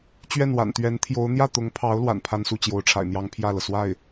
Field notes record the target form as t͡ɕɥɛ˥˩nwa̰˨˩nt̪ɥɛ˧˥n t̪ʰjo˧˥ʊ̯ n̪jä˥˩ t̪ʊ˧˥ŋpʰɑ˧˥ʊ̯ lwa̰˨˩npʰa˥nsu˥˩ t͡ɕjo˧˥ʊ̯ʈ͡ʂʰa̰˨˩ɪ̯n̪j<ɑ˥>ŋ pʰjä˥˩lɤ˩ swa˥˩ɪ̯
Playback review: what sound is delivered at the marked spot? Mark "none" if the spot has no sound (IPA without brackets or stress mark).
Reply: ɑ˥